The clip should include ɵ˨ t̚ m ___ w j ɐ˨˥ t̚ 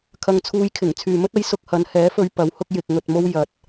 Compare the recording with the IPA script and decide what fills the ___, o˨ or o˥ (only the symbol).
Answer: o˥